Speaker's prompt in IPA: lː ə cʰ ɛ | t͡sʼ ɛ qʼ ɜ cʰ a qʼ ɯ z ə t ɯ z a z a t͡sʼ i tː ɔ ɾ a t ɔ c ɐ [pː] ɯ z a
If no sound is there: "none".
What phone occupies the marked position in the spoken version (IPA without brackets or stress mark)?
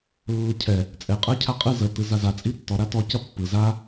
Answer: pː